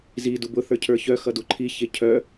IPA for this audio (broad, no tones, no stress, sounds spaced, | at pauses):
z i d u b ʊ θ ə˞ cʰ ə˞ ç œ x ʌ d u ǃʰ i ç e cʰ œ